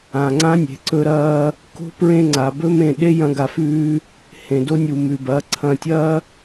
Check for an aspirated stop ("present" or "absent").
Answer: present